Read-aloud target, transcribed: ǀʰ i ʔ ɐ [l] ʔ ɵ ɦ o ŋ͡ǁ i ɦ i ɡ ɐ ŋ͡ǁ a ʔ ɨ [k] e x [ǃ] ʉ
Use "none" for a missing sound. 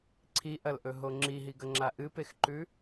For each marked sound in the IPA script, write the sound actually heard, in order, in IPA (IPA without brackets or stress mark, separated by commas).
l, p, ǃ